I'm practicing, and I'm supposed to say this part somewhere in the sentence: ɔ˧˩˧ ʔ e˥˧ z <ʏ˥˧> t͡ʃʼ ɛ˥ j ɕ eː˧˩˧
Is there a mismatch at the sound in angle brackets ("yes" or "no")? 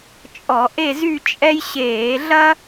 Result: yes